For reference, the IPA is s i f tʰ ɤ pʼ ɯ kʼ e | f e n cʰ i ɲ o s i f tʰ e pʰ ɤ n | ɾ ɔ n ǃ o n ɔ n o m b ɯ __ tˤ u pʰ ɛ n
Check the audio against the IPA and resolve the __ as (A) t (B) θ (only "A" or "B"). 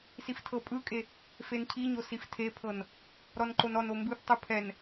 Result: B